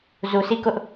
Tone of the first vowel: low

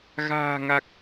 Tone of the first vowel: low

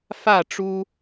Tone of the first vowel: falling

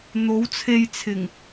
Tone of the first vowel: rising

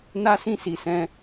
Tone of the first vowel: high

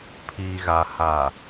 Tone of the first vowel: low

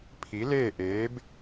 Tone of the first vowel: rising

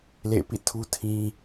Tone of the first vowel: falling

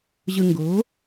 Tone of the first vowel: low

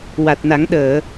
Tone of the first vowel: low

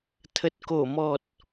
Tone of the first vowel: low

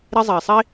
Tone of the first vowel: high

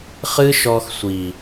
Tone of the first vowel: high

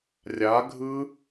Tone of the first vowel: rising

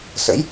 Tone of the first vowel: rising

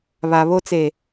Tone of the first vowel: low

